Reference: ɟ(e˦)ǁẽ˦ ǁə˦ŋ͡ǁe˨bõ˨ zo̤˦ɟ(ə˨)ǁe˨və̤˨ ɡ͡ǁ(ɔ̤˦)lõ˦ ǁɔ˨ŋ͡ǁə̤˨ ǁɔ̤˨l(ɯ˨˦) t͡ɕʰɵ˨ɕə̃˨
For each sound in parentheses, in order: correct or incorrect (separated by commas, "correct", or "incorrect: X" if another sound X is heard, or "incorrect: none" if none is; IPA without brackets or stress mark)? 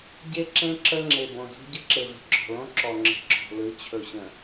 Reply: correct, incorrect: ə˦, incorrect: ɔ̤˨, correct